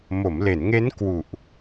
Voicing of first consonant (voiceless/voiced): voiced